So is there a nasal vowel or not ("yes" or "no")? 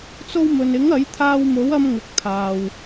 no